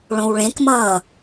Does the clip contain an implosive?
no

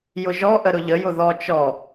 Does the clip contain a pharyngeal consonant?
no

